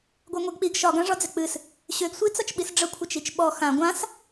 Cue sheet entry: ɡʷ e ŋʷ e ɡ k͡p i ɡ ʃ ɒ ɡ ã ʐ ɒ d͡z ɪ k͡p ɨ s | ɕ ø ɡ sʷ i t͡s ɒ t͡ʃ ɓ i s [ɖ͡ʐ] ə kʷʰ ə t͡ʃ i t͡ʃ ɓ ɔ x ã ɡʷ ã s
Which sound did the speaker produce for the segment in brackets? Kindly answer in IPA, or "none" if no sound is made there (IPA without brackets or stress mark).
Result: ɖ͡ʐ